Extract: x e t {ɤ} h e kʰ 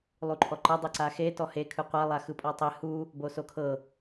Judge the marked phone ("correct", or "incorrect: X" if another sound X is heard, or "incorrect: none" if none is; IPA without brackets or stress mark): incorrect: ɔ